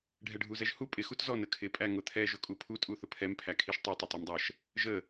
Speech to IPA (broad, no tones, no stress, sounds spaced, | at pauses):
ɖʱ ɛ ɖʱ u z ɛ ʒ h u pʼ ɪ x u t z ɔ n ə kʰ ɪ pʼ æ ŋ ʊ t̪ʰ ɛ ʒ ʊ kʼ u pʰ u tʼ u θ ʊ pʰ ɛ m pʰ æ kʰ i ʃ tˤ i tˤ ʊ tˤ ɜ m dˤ ɜ ʃ | ʒ ə